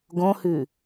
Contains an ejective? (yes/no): no